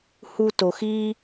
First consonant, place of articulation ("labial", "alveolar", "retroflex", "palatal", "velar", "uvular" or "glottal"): glottal